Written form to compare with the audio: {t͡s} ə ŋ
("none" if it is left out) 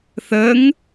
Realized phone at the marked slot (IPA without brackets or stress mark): θ